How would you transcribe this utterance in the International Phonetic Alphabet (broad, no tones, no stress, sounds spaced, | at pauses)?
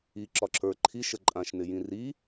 i ǁ ɒ ǁ ə˞ ǃʰ i ʃ ə ǃʼ ã ʃ n ɪ j ĩ r i